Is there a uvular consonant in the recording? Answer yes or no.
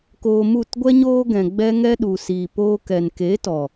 no